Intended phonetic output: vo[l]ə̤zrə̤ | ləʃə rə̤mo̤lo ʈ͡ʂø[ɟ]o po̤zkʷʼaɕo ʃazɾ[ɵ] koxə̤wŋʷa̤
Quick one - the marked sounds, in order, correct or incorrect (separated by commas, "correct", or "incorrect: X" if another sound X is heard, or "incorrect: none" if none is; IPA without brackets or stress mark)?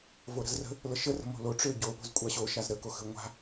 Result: incorrect: ɾ, correct, incorrect: ə